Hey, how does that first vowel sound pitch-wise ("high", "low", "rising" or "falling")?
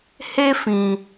high